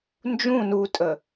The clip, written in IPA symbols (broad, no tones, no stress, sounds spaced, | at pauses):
n d͡ʒ ũ n u tʼ ə